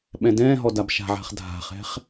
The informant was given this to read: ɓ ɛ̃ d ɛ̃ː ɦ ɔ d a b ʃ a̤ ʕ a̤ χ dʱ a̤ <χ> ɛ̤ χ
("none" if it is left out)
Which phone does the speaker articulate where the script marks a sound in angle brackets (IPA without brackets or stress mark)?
χ